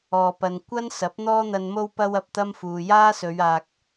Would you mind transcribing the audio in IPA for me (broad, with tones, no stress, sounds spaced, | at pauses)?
ɔː˧ p ɐ˧ n kʷ ɐ˥ n s ɐ˨˥ p̚ n̪ ɔː˥ n̪ ɐ˧ n m o˥ w p ɐ˥ w ɐ˧ p̚ t̪ ɐ˥ m f uː˨ j aː˥ s ɵ˨˧ ɥ aː˨ k̚